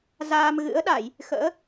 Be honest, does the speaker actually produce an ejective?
no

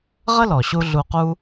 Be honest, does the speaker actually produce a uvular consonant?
yes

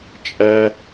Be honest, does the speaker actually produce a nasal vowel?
no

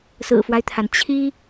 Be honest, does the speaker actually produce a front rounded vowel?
no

